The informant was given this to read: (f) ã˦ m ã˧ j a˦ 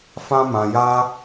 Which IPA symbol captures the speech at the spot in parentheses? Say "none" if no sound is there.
f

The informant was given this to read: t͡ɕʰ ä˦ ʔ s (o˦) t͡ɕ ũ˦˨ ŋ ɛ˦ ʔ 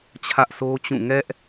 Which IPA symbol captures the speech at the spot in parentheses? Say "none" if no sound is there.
o˦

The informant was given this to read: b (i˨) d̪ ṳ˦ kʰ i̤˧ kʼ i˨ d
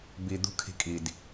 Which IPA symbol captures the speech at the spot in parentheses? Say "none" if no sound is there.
i˨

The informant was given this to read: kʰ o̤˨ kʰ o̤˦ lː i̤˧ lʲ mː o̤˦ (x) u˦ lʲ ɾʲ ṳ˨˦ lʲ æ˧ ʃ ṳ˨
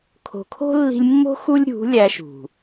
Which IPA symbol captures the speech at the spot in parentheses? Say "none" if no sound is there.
x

